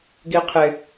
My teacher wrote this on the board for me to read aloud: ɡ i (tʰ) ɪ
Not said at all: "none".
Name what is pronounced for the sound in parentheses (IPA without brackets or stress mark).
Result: qʰ